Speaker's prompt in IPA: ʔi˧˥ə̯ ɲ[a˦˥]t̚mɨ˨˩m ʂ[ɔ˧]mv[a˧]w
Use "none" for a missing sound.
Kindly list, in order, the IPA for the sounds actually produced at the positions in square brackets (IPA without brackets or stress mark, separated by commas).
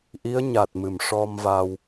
a˨˩, ɔ˧, a˧